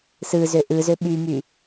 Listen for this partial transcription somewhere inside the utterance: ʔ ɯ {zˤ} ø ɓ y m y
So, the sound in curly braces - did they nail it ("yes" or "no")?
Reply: no